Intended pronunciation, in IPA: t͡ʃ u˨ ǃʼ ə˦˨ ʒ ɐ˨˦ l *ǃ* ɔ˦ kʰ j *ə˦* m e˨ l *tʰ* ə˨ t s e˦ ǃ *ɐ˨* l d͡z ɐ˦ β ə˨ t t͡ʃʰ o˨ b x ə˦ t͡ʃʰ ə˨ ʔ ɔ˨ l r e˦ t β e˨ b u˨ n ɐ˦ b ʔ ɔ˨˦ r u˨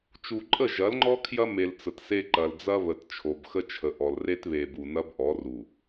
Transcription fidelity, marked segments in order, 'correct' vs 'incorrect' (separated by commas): incorrect, incorrect, incorrect, correct